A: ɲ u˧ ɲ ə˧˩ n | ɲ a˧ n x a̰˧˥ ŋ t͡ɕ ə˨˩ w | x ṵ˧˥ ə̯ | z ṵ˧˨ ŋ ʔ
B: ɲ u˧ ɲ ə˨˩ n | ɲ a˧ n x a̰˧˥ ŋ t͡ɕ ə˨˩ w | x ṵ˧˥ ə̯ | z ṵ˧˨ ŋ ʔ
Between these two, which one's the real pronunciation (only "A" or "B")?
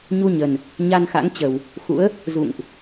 B